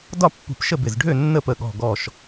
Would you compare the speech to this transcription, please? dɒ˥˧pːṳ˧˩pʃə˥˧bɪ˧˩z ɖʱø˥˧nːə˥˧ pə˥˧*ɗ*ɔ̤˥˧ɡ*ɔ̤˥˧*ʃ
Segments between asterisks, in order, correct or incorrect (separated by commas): incorrect, incorrect